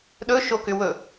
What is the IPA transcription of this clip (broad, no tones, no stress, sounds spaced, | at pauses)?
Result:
ɗ ɵ ʃ o k ʏ w ɵ